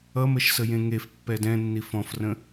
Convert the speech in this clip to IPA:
ʌməʃ səjẽŋef pːɛdɛ̃nːif ɔ̃frə̃

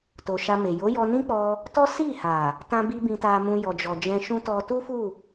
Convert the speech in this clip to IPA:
to˨ʃa˧me˨ jo˨˦jɔ˧ nĩ˦k͡pɔ˧ | tɔ˦ si˦˨ha˨ | tã˧bi˧ bĩ˧ta˧mũ˧ jɔ˨d͡ʒɔ˨d͡ʒɛ̃˧ʃũ˦ tɔ˧tu˦fu˦˨

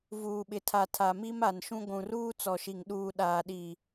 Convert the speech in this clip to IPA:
vuː˨ɓɪ˨tʰa˨ tʰa˨mi˦ma˨nʃũ˦ ɡʷũ˨ruː˦t͡sɔ˨ʃi˨ŋ ɗuː˨ ɗaː˨ɗi˨

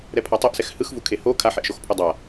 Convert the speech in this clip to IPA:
ɾɛpʰatˤɤʔsɛx hɯxvukʰe ho kʰaħeʔʃoxpʰu dˤa

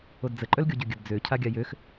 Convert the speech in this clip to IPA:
odd͡zə ǃʼœlɡʲoɟøɡʲəd d͡zø cʰaɡʲajøx

